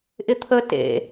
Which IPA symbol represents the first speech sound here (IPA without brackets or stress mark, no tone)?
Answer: ʔ